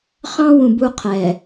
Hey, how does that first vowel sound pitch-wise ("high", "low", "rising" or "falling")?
high